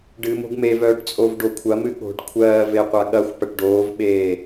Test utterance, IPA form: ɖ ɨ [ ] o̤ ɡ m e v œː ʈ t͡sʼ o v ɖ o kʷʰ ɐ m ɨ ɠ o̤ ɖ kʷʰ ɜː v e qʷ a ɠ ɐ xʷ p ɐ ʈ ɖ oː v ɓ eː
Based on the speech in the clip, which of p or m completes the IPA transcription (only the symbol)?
m